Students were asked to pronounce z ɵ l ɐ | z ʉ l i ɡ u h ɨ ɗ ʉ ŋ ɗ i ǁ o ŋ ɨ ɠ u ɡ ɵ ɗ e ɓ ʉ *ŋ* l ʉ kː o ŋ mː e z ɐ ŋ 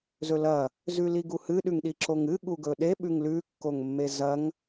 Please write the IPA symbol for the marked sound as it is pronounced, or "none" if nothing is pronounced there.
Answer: ŋ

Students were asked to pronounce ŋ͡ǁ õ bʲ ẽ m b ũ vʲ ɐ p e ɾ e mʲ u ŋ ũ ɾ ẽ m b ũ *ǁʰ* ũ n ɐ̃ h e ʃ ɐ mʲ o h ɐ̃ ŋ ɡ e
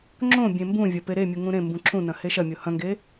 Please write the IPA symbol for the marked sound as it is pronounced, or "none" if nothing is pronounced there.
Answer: ǁʰ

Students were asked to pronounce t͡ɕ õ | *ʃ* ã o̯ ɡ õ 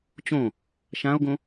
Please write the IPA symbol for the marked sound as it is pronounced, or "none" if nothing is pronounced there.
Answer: ʃ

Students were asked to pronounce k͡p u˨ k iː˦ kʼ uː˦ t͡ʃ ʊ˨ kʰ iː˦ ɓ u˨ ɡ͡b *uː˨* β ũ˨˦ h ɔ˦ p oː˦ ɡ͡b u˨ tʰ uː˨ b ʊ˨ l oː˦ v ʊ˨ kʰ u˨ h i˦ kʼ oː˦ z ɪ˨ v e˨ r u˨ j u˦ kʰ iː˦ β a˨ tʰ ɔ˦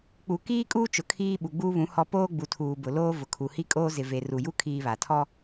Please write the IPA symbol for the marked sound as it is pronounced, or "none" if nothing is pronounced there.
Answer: uː˦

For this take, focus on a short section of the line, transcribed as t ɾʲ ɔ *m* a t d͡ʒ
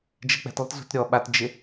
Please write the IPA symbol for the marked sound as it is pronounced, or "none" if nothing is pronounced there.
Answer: ɓ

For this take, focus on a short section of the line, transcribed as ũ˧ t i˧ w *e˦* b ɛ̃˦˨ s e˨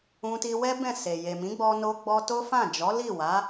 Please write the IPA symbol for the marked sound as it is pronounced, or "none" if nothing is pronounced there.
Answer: ɛ˦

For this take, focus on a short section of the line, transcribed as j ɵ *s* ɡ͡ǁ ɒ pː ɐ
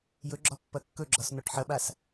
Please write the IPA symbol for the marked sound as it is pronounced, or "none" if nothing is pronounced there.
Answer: none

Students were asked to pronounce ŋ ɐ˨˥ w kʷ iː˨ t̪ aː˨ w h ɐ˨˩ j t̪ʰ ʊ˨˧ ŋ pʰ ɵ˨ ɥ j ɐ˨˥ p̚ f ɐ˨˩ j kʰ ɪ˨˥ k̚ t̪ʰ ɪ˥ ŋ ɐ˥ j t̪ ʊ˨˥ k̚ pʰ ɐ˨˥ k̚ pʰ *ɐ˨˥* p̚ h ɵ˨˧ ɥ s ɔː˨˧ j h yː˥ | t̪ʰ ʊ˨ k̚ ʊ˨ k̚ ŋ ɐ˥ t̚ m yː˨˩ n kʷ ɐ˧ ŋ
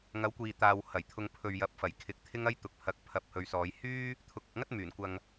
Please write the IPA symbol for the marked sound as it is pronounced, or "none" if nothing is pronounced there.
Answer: ɐ˨˥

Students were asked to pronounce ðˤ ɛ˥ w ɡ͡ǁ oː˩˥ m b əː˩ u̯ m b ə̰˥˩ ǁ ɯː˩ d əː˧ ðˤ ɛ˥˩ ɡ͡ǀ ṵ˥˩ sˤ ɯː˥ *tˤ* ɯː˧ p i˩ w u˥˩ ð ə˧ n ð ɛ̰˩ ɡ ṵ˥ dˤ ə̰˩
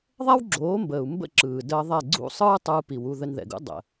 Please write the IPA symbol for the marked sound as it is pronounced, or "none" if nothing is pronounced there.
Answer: tˤ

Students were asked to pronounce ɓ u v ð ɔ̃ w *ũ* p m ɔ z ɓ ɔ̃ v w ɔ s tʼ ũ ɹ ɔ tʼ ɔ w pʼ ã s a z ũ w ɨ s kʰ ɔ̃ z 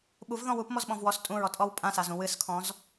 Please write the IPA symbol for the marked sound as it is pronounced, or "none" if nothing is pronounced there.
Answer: u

